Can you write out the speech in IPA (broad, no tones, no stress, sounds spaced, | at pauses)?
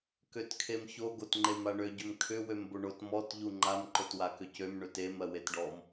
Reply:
k ø t kʰ e m ç o ɡ o t ŋ͡ǃ e m a ɳ ø ɟ ʏ m kʰ ʏ w ø m b o ɳ o t m ɔ t ʎ u ŋ͡ǃ a m ǃ o t w a k ʏ c ø m ɳ ø t e m ɜ w e t ɖ ɔ m